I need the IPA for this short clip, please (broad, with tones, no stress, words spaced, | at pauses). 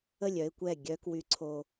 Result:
ə˦˨lʲœ˦ɪ̯kʷɛ˦˨ ɡʲœ˦kwy˦ǀʰo˦